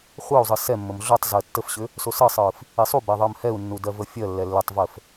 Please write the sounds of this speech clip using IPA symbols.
χʷ əː u̯ zˤ ɯ s ɛ mː ə m ɮ o tˤ z əː tː ə f ɕ ʏ | s o s ɯ sˤ ɯː f | i sˤ u b ɛ ðˤ əː m h ɛ u̯ nː u d ɜ v ə fʲ ɜ lː ɛ lː ʏ tˤ v əː f

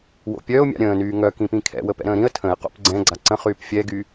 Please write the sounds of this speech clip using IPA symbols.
w o̰ pʲ œ ʊ̯ mʲ a̰ ɾʲ ə̃ː n yː ŋ œ k ĩ p ĩ kʰ ɛ̰ w ə p ɛ̰ ɾ ə̃ː ɾ ĩ ə̯ tʰ ə̃ ɪ̯ q o̰ p ɡ͡ǀ ɛ̃ ɡ͡ǀ a ǀ ə̃ χ yː p fʲ ɛ ɡ y

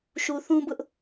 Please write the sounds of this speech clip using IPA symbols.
ʃ u˨ θ ũ˦ b ʊ˦ ʔ

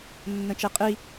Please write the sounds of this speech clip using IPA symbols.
nː ə̃ t͡ʃ e qʼ i

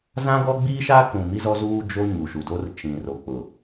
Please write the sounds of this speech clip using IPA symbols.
z ã˦ ɡ ɔ˦ ɡ͡b iː˦ ʃ aː˦ k ũ˨ m i˦ z ɔ˦ z uː˦ d͡ʒ o˦ ɲ u˨ ʃ u˨ d o˦ r t͡ʃ ĩ˨ r o˨ k͡p ʊ˨

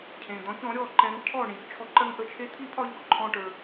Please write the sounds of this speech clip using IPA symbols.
cʰ ẽ˩ d̪ ɔ̃˩˥ ç ɔ̃˩˥ ɾʲ ɔ˥˩ ǃ ɛ̃˧ ŋ cʰ ɔ˥˩ ɳ ĩ˩ ç t͡ʃʰ ɔ˧ ǃ ɜ˥ ŋ ʔ ə˥˩ t͡ʃʰ e˥ t̪ʰ i˥ pʰ ɒ˥ ʎ ɔ˩ ǃʰ ɔ̃˧ ʈ ə˞˩

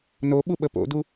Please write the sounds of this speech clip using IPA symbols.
n o ɓ u ɓ ə p o̰ d u

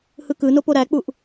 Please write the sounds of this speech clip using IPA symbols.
h ɯ k ɯ n o p o ɾ æ k͡p u ʔ

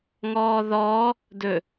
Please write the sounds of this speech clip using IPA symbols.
ŋ ɔː ð ɔː | d ɵ

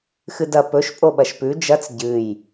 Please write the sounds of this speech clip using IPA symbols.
x ɨ d ɐ p ɵ ʃ pʼ o ɓ ɐ ʃ p ʉ d͡ʒ ɐ t͡s ɟ ɨ j

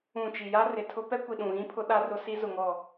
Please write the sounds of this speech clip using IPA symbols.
ũ˨ t͡ʃ i˨ j a˦ r ɪ˨ tʰ ʊ˦ p ɛ˦ kʷ i˨ ɗ ũ˨ ɣ ĩ˦ pʰ ʊ˦ ɗ a˦ r ʊ˦ s i˦ z ʊ˨ ŋ ɔ˨

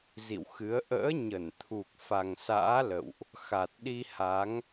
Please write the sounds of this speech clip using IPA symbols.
z ḭ˧˨ w x ɨ˨˦ ə̯ ʔ ə̰ː˧˥ ɲ ə˧˩ n t̪ʰ u˨˩ k̚ f a˨˩ ŋ s a̰ː˧˥ l ə̰˧˨ w ʔ | x a˨˩ t̚ ɗ i˧ h a˨˦ ŋ

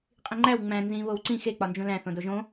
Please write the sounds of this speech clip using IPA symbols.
qʼ ĩ ŋ͡ǃ æ w ŋ͡m æ̃ n z ĩ β o w ǀ ĩ x e k͡p ɒ n d͡ʒ ũ l æ̃ θ õ d o ʒ õ

